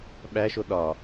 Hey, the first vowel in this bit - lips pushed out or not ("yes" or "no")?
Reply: no